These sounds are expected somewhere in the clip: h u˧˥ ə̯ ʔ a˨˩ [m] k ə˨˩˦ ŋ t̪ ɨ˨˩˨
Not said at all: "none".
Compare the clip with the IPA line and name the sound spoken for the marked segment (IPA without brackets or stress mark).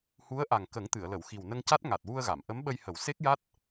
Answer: ŋ